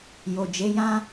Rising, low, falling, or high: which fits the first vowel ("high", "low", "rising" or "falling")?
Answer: low